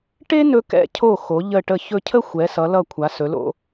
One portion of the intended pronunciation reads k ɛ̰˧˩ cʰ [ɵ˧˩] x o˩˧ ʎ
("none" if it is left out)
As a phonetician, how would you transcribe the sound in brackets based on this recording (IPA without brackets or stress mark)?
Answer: o˧˩